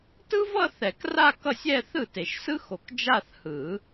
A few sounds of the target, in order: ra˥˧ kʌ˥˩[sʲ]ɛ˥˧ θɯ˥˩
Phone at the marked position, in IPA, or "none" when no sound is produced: sʲ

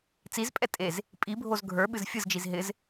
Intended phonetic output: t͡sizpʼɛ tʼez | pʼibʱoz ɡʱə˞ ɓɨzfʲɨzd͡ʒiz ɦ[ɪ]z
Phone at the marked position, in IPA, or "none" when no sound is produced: ɪ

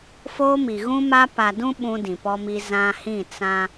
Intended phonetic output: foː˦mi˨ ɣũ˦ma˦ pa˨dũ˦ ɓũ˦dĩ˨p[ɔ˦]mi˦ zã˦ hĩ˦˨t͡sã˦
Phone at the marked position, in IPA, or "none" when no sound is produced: ɔ˦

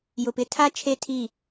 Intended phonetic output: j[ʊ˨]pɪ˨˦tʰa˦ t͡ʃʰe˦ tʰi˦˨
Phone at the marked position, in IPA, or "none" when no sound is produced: ʊ˨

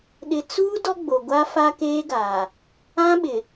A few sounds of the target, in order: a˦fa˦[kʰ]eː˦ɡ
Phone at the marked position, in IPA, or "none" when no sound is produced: k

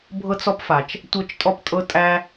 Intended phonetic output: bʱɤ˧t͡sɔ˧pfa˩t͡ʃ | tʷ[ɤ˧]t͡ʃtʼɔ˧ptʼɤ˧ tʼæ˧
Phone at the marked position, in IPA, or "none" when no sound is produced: ɤ˧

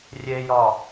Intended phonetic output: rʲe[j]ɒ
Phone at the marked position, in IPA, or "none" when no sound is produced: j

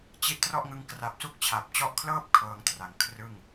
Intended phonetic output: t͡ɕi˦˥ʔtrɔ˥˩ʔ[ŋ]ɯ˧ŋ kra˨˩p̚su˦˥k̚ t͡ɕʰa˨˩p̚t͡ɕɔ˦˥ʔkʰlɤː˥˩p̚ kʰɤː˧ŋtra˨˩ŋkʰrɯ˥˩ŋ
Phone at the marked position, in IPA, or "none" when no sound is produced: ŋ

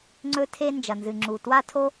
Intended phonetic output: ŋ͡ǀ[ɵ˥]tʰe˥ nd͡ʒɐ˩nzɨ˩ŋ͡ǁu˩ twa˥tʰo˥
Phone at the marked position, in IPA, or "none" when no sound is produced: ɵ˥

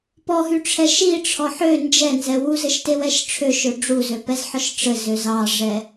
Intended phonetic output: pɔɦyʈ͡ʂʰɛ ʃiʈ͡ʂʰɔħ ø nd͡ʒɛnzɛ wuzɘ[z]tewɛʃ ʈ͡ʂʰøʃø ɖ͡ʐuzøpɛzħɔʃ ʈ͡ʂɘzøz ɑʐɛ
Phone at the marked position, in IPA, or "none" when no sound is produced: ʃ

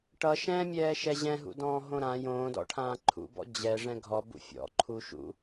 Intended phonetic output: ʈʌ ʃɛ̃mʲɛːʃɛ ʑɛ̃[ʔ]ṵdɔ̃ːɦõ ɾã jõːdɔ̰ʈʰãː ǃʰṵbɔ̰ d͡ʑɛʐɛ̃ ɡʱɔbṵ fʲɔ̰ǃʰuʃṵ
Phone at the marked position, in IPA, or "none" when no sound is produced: ɦ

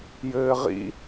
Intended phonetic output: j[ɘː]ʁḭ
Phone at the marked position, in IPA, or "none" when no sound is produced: ɘː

